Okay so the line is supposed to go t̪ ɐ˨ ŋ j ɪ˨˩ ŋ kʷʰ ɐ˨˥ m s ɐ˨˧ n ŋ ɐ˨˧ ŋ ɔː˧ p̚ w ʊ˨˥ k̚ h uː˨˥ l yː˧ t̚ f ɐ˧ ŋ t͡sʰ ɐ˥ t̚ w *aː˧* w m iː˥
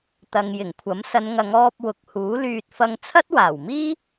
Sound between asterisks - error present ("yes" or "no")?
yes